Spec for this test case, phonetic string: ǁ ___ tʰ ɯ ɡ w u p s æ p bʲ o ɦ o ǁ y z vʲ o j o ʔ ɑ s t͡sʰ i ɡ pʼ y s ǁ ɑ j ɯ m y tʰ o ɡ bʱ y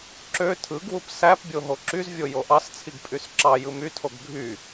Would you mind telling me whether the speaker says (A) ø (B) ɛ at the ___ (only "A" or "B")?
A